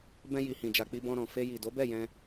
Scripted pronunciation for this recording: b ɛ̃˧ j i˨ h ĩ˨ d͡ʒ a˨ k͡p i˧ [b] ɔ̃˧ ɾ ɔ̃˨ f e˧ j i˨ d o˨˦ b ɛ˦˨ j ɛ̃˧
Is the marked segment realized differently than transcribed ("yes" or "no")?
no